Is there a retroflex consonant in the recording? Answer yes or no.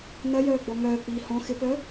no